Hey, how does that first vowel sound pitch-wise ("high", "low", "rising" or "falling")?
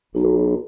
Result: low